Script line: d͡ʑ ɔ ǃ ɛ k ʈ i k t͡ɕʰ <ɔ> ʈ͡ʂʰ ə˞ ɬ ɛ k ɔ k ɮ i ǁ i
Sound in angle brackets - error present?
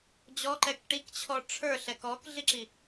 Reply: no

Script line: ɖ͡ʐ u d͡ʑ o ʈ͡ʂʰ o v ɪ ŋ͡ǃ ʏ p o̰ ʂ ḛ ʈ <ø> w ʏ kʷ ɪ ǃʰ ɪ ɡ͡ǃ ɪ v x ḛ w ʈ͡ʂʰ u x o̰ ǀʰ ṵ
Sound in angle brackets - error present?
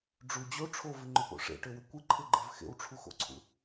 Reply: no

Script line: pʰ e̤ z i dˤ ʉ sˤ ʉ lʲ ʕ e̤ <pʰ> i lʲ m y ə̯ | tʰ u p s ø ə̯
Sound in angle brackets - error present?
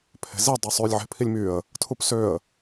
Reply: no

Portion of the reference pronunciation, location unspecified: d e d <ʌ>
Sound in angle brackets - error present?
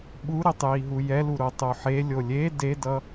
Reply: no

